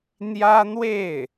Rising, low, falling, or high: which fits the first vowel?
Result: high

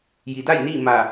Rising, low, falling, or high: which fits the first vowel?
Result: low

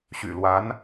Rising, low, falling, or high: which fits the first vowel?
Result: low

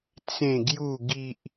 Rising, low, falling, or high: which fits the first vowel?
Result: low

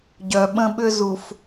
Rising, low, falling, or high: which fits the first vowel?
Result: low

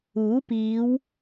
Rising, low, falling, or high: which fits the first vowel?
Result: rising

